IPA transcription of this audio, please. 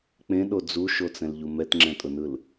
k͡p ẽ ɗ o d͡z u ʃ o t͡s ɛ̃ l ʎ u m ɛ t ŋ͡ǁ ɛ̃ tʼ ʊ n ɯ l

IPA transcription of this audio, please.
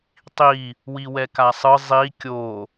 tˤ i | w i w ɛ k a sˤ ɯ zˤ i kʲ o

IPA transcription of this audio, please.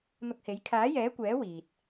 n̪ ʊ˧ k̚ h e˨˥ j kʰ aː˨˥ j ɛː˨˥ kʷ ɛː˨˥ w iː˧ t̚

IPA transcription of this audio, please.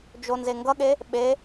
d͡ʒ o n z e ŋ ɡ ʌ ɠ e | ɓ e

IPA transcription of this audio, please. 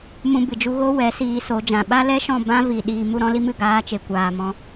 m ũ˧ b ɨ˨ d͡ʒ u˧ ɣ o˦ w ɛ˨˦ s iː˧ s o˨˦ d͡ʒ ã˨ ɓ a˦ l ɛ˦ ʃ ɔ̃˦˨ b ã˦ v i˨ ɗ iː˧ m u˦ ɾ ɔ̃˦ l i˦ m ɨ˨ ɡ aː˦ t͡ʃ e˧ kʷ aː˨ m ɔ̃˧

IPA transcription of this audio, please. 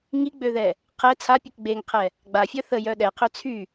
ŋ i ɡ͡b ø ð ɛ | qʰ ɛ t͡sʰ a pʲ u k ɡ͡b e ŋ qʰ ɛ | ɡ͡b a fʲ œ θ ə j œ ɗ ɛ qʰ ø t͡sʰ y

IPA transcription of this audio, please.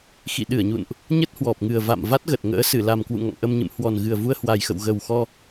x ḭ˧˨ ɗ ɨ˧˩ ə̯ ɲ ṵ˧˨ n ʔ | ɲ ə˦˥ t̚ h w ɔ˨˩ p̚ ŋ ɨ˨˩ ə̯ v a̰˧˨ m v a˦˥ t̚ ɣ ə˨˩ t̚ ŋ ə̰ː˧˥ s ɨ˧˩ l a˨˩ m k w ṵ˧˨ ŋ ɔ̰˧˨ ŋ ʔ ə˧ m ɲ ɨ̰˧˨ m h w ɔ˨˩ n ɣ ɨ˨˩ ə̯ v u˧ ə̯ h w a˨˩ j x ə̰˧˨ w ɣ ə˨˩ w x ɔ˧

